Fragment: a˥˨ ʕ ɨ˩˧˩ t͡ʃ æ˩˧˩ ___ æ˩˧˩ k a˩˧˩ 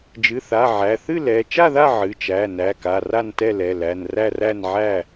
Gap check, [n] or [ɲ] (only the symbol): n